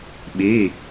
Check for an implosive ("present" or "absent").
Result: present